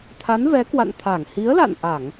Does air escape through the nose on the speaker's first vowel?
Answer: no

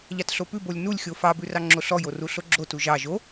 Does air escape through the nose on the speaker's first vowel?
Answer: no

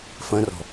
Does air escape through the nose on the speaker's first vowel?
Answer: yes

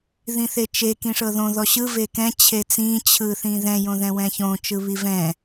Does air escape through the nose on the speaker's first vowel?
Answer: yes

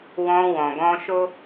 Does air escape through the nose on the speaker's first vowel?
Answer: yes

